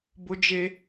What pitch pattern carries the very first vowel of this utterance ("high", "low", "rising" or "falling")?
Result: high